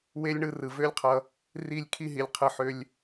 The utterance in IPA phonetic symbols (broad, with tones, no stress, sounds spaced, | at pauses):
w e˦ lʲ ɳ ɯ˧ r ɯ˨ v ø˦ lʲ qʰ ʌ˧ | r i˦˨ lʲ kʰ i˦ ɦ i˨ lʲ qʰ ɯ˧ ħ ø˦ lʲ